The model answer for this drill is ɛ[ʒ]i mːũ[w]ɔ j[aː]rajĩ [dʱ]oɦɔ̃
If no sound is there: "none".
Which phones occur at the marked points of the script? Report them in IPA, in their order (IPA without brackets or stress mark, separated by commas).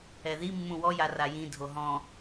ð, w, a, dʱ